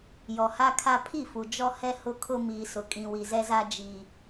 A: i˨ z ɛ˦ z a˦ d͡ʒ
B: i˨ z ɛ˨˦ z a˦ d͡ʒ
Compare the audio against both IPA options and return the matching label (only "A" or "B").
A